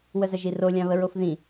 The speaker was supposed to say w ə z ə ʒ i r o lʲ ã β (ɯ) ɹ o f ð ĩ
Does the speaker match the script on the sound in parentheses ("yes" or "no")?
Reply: no